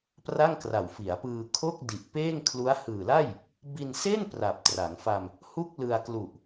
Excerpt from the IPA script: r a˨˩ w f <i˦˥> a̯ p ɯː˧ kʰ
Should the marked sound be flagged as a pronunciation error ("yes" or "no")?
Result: yes